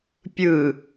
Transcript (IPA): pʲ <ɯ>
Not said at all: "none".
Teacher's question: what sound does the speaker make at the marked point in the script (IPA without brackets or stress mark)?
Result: ɯ